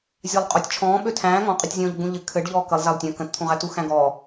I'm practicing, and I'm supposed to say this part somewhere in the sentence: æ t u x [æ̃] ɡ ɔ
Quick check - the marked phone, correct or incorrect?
correct